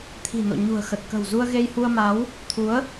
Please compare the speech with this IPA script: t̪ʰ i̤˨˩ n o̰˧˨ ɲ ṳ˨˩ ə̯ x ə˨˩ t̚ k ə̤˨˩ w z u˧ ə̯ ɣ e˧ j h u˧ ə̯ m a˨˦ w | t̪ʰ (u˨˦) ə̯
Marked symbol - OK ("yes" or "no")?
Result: yes